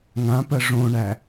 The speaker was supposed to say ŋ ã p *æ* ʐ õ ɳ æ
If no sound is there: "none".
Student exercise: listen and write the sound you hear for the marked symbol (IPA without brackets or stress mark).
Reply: ɜ